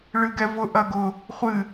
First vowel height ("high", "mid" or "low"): high